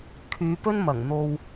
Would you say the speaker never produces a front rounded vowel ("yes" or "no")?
no